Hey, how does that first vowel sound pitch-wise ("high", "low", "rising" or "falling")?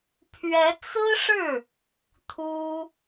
rising